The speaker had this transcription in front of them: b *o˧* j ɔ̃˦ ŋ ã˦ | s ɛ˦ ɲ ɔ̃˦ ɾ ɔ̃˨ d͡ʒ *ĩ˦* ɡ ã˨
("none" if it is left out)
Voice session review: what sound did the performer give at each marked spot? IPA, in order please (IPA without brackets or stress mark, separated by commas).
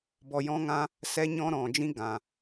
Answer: ɔ˧, ĩ˦